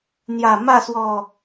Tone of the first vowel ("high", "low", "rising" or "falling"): low